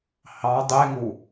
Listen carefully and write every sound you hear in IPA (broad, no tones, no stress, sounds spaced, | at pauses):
h ɑ dˤ e ŋ u